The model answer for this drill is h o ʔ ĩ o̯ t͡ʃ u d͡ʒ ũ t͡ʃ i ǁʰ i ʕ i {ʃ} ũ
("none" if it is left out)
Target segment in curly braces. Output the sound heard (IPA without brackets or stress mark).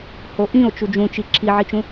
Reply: t͡ʃ